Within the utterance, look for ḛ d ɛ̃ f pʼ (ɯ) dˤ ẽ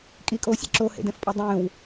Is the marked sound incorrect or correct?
correct